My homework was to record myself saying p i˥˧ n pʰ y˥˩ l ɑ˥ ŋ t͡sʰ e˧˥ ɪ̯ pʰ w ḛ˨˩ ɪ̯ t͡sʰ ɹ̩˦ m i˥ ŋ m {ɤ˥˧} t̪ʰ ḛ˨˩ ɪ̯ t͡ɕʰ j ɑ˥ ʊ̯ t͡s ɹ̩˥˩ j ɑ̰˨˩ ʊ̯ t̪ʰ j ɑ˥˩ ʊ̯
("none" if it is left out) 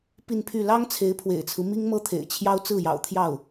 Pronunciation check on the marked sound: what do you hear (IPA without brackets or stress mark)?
ɤ˥